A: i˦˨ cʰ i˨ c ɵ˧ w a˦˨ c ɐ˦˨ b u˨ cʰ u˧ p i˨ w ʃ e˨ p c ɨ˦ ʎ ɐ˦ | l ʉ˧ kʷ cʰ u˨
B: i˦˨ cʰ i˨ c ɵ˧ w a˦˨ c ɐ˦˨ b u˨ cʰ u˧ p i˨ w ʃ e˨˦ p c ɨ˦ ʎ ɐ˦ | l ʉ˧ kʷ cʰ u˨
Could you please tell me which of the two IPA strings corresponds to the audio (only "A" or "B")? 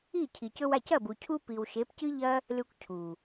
B